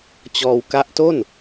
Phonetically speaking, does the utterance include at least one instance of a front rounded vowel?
no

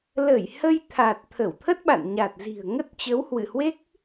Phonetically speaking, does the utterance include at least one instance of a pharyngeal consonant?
no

